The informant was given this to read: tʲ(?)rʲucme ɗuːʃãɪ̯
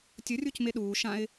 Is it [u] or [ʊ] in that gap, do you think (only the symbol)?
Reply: ʊ